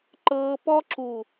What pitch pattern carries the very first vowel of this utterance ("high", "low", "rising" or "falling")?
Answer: high